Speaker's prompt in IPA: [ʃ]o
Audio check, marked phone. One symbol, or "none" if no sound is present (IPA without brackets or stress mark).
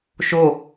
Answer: ʃ